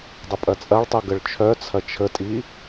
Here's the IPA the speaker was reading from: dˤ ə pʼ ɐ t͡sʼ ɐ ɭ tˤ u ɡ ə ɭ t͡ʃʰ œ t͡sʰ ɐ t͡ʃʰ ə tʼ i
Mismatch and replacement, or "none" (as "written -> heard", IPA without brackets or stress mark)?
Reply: none